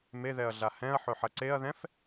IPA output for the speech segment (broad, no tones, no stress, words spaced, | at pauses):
meðɛɐ̯ɮa hɛ̃ɐ̯ħɵħɐ ǀeɐ̯ðɛ̃f